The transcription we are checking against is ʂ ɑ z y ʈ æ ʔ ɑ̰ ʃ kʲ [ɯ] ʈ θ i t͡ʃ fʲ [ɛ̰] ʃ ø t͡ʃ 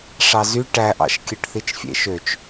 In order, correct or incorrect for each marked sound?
correct, incorrect

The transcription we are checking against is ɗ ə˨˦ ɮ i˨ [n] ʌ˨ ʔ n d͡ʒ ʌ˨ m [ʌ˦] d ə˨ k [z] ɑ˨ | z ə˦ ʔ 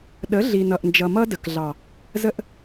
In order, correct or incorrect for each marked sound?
correct, correct, incorrect

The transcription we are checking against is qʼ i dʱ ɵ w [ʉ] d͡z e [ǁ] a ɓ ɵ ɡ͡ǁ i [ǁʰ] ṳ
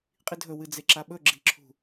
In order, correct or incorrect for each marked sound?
incorrect, correct, correct

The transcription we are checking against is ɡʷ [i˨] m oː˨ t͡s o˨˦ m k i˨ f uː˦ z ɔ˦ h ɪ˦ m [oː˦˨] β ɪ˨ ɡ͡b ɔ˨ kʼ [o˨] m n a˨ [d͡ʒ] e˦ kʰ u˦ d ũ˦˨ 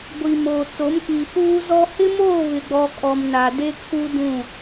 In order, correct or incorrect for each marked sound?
correct, correct, incorrect, incorrect

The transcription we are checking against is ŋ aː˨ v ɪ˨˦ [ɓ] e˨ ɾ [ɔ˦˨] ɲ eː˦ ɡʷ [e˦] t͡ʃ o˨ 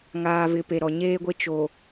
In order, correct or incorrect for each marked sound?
incorrect, incorrect, correct

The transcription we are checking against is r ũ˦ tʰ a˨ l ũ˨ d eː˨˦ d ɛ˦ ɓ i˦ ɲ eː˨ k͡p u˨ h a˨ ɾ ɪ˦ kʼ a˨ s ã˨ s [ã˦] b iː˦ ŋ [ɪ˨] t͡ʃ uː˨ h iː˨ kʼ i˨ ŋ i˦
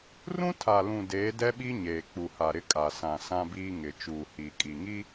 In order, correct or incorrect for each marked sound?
correct, correct

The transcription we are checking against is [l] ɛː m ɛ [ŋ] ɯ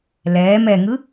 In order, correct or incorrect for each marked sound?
correct, correct

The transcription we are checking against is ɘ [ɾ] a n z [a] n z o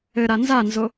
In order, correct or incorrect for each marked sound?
correct, correct

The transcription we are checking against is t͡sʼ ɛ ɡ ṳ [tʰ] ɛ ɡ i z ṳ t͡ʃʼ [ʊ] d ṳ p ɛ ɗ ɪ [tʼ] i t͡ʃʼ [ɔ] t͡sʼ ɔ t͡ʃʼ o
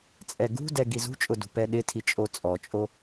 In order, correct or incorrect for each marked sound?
incorrect, correct, incorrect, incorrect

